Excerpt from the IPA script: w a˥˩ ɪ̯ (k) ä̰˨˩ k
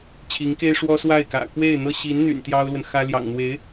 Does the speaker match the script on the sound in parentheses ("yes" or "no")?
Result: yes